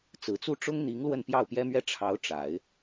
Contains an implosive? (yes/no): no